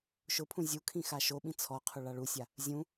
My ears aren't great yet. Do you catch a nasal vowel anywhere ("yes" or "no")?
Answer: yes